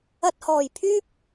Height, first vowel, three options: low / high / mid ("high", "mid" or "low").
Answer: low